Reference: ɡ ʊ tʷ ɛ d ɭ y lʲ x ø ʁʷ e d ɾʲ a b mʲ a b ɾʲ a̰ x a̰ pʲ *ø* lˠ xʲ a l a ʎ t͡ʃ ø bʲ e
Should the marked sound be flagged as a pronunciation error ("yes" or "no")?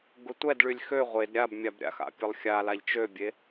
yes